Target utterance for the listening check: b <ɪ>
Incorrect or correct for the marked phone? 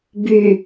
incorrect: y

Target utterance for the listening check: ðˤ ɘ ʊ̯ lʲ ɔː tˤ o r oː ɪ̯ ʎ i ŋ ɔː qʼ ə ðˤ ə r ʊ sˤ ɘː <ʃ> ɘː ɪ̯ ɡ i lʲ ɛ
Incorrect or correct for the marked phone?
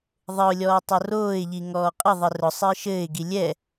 correct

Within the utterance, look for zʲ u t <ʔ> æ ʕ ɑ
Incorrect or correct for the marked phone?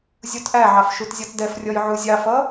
correct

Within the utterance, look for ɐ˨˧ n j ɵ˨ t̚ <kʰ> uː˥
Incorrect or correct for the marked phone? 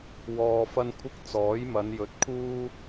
correct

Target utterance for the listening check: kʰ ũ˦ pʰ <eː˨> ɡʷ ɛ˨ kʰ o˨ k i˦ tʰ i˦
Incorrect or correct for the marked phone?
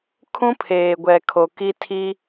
correct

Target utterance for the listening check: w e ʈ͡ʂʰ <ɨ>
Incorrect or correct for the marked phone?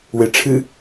correct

